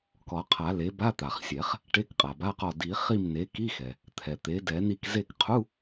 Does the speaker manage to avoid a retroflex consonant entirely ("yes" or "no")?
no